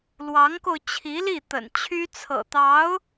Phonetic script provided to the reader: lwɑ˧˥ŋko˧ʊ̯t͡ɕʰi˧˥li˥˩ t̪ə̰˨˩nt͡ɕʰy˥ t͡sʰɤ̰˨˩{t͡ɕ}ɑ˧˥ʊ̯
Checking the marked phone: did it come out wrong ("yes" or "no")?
yes